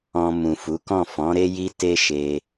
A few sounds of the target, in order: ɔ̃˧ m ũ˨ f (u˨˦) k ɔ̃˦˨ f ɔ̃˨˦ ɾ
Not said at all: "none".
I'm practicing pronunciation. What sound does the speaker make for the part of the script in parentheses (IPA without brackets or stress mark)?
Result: u˨˦